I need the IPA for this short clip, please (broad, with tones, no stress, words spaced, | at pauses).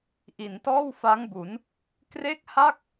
ʔi˩˦ntɔː˥˩wfa˦˥ŋbu˩˦n | kre˥˩k̚ha˥˩k̚